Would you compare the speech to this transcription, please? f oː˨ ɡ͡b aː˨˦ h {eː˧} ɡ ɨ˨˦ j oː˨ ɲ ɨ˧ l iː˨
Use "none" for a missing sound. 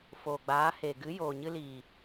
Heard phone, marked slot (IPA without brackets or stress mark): eː˨